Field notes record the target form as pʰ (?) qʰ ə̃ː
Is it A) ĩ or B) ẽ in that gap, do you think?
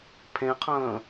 B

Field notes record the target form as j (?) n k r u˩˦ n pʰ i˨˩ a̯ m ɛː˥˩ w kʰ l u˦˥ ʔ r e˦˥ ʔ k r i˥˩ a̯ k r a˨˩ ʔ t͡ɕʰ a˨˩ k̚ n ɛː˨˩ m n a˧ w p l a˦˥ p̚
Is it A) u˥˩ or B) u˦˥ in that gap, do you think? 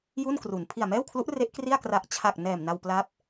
A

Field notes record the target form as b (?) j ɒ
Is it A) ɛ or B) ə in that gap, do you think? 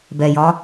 A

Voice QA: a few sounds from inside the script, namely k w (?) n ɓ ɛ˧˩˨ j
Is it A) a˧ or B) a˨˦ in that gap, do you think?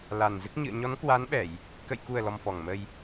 B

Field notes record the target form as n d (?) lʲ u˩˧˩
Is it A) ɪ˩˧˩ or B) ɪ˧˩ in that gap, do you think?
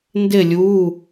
B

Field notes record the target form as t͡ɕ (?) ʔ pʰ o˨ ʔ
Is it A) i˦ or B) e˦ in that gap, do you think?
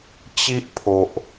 A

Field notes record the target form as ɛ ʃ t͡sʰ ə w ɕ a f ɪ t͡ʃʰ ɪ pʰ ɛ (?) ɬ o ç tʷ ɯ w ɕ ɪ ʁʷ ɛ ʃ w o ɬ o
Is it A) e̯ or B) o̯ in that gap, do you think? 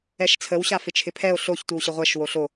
B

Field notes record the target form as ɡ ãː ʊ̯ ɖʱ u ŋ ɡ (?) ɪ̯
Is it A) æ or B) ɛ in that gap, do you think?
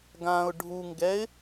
B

